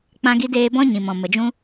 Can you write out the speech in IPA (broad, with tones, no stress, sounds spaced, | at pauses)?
k͡p ã˦ ɡ i˦ d eː˦ b ɔ̃˦ ɲ ĩ˨ m ɔ̃˨ m ə˨ d͡ʒ ũ˦